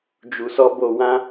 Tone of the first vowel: low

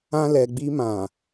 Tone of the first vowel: high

